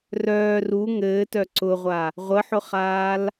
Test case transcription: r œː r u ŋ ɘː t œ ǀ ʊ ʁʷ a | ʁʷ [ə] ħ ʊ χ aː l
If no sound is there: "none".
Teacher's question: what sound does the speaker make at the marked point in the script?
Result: ə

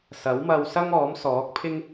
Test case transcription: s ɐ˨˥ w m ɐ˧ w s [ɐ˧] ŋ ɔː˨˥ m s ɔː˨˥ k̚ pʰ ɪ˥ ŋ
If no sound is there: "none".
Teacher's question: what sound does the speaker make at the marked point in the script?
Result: ɐ˥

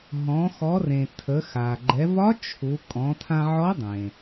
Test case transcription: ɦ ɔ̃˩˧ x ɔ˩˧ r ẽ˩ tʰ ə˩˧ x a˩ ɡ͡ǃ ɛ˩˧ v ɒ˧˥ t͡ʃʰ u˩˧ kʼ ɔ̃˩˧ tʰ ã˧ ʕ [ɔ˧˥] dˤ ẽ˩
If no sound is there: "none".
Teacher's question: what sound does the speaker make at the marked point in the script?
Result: ɔ˧˥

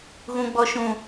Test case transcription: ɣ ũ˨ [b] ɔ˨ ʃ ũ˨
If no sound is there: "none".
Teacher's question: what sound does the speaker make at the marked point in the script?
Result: ɡ͡b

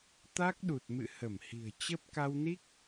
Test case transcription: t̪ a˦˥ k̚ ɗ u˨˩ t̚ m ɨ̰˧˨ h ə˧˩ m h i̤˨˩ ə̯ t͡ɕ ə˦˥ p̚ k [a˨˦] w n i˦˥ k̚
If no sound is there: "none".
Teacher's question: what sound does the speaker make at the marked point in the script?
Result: a˧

